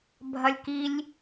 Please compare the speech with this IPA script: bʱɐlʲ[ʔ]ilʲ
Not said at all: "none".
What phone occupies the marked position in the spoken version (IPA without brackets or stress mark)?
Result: k